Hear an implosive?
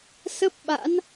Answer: yes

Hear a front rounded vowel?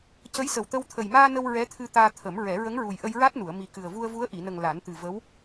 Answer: no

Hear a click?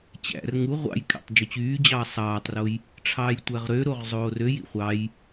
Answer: no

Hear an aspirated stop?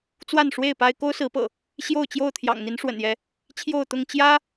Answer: yes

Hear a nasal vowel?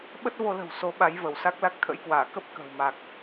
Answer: no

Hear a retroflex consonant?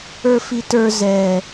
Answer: no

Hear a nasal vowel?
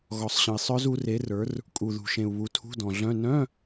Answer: yes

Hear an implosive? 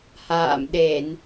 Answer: yes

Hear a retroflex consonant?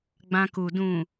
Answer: no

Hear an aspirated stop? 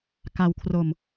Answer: yes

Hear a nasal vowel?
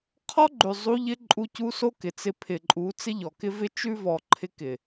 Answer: no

